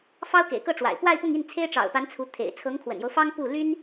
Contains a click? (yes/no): no